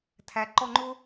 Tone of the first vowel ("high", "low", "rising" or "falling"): low